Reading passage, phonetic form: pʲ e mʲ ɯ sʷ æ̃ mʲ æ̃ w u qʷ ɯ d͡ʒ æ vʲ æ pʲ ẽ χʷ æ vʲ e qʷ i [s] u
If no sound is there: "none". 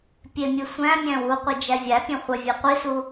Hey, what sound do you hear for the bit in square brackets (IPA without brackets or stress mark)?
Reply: s